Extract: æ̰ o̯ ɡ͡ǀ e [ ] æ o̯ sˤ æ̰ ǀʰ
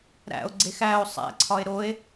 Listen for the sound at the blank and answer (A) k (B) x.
B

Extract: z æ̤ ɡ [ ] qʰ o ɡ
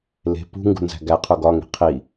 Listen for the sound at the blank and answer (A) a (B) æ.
B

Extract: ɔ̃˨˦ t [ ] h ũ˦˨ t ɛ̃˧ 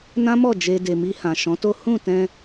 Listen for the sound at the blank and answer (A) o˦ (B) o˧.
A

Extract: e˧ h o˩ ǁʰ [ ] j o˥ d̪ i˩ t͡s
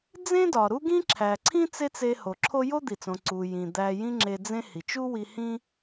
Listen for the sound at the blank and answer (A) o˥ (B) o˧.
A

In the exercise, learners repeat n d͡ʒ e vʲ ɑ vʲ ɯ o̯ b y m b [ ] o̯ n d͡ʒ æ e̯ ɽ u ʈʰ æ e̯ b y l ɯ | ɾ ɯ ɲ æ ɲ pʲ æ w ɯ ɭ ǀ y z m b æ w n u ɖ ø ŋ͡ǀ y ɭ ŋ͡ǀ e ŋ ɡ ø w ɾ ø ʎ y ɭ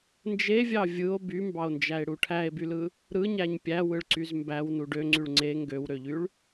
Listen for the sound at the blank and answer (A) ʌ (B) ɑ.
B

